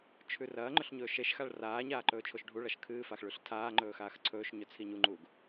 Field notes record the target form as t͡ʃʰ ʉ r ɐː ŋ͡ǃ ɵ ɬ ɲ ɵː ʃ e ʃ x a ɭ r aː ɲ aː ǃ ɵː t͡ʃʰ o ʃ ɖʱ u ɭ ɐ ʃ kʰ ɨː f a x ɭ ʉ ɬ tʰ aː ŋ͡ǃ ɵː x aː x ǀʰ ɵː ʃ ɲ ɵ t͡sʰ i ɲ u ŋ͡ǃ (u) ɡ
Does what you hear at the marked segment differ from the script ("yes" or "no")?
yes